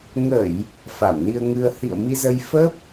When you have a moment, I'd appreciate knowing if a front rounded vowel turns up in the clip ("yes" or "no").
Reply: no